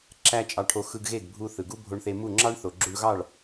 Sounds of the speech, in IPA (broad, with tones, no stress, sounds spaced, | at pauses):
ǁ æ˥ t͡ʃʼ ɑ˧ ʈʰ o˧ x ɯ˧ ɡ ɣ e˥˩ ɡ bʱ u˧ θ ɯ˩ ɡ u˥ bʱ o˧ ɳ θ e˧ m u˥˩ ŋ͡ǁ ɑ˥ ɳ θ o˩ ɡ͡ǁ u˧ ɳ ɣ ɑ˥˩ ɭ